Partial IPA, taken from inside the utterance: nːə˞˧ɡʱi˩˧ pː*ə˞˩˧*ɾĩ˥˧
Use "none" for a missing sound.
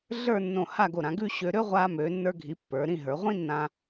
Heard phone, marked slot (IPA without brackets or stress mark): ə˞˩˧